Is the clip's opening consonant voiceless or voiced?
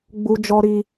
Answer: voiced